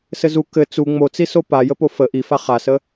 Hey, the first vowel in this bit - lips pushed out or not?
no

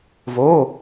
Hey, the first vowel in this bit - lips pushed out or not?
yes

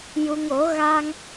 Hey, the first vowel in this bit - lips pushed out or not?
yes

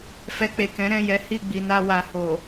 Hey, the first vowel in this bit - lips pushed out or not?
no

